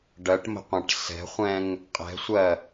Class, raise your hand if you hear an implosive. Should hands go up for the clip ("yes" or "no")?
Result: no